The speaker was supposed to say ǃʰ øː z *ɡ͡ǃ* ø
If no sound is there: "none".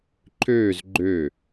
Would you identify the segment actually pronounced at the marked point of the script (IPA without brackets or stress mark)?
ɡ͡ǃ